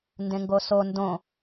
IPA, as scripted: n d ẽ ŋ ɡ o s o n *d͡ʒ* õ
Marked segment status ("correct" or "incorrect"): incorrect